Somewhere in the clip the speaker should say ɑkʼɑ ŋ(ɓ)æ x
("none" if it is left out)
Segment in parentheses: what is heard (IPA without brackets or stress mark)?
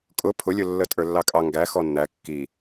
ɡ